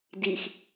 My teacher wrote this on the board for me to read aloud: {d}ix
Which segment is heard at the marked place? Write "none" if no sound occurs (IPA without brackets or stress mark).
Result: d